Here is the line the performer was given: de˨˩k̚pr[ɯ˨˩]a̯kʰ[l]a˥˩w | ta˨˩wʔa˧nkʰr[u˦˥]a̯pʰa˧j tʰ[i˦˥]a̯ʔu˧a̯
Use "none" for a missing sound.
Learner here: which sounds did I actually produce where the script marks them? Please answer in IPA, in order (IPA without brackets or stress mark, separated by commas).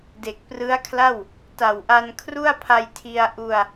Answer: ɯ˦˥, l, u˥˩, i˧